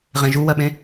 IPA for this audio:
ʁ ẽ ʒ u w ɜ ɓ ẽ

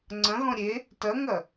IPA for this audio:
ŋ͡ǀ ɐ̃ ɣ ɔ̃ ɾʲ e | t ɐ ŋ ɐ

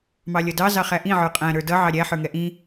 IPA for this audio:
m ɑ lʲ ʌ d ɑ z ɑ χ æ ʔ ĩ ʕ ə˞ qʼ æ̃ ɾ ə˞ d ʌ ʕ ɑ ɾʲ æ ħ ə˞ ŋ ɛ ʔ ĩ

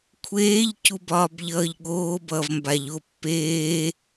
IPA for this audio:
kʷʰ eː ʎ c u b ɒː b ʎ ʌː ʎ ɠ oː b ʌː v m b a ʎ o pː eː

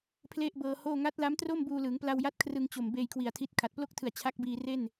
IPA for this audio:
pʰ l e˥˩ ʔ b ɤː˧ h oː˥˩ ŋ a˦˥ t̚ l a˦˥ m t r o˥˩ m b uː˧ l ɯː˩˦ ŋ p l a˧ w j a˦˥ t̚ kʰ r ɯ˧ ŋ t͡ɕ o˨˩ m b eː˧ j kʰ w i˨˩ a̯ tʰ i˦˥ t̚ kʰ a˨˩ t̚ p l o˥˩ k̚ tʰ ɯ˨˩ a̯ t͡ɕʰ a˦˥ k̚ b iː˧ r e˥˩ n

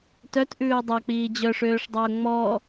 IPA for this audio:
t œ t ʔ ʉː ʊ̯ dˤ ɑ k͡p iː d͡ʑ œ ʂ øː ʂ dˤ ɑ ʊ̯ ŋ͡m ɔ

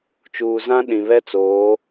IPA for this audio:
t͡ʃ uː˨ z ã˦ ɗ ĩ˨ β ɛ˦ t͡s oː˨˦

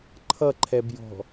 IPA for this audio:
ǃʰ ʌ ǃʰ ɛ b j ɔ̤

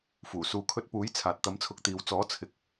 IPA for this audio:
f uː˨˩ s uː˨ kʰ ɵ˧ t̚ p uː˨˥ j t͡sʰ aː˨ t̚ t̪ ɐ˨˥ m t͡sʰ ʊ˨˥ k̚ t̪ iː˨ w t͡s ɔː˨˥ t͡sʰ ɪ˨˥ k̚

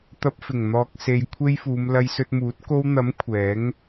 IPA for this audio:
t̪ ɐ˧ p̚ f ɪ˨˩ ŋ n̪ ɔː˨ k̚ s e˨ j kʷʰ e˥ j f uː˨˧ m l ɐ˧ j s ɵ˧ t̚ m uː˨˥ t̚ k o˧ w n̪ ɐ˨˥ m kʷʰ ɛː˨˥ ŋ

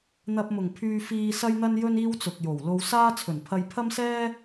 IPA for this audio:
n̪ ɐ˧ p̚ m ʊ˨˩ ŋ pʰ yː˧ f iː˧ s ɐ˥ j n̪ ɐ˥ n j ɵ˥ n iː˥ w t͡s ʊ˨ k̚ j o˨˩ w l o˧ w s aː˥ t͡sʰ ɵ˨˩ n pʰ ɐ˧ j pʰ ɐ˥ m s ɛː˥

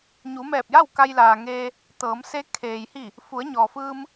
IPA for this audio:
ɲ u˩˧ m ɛː˧˩ p̚ j a˥˨ w k a˧ j l aː˩ ŋ eː˧ | t̪ ɤː˩˧ m s e˧˥ kʰ eː˩ j h i˧˩ | f u˩˧ ə̯ ɲ ɔː˩ f ɯː˧ m

